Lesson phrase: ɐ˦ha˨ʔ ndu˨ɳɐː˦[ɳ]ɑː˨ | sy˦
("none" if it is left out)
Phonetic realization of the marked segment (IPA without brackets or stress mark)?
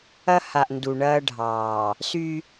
ɖʱ